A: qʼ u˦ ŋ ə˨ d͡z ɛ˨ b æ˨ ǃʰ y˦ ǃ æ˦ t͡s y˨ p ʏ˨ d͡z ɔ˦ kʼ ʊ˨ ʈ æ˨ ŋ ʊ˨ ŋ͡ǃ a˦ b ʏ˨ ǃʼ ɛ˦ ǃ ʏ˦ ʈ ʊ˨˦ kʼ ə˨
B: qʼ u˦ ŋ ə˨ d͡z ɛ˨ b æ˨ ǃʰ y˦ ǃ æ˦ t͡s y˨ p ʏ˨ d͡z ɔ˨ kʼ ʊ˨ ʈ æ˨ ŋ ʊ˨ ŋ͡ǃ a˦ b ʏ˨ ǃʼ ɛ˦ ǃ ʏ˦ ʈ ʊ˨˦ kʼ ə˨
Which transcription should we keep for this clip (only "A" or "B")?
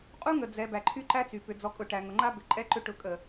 B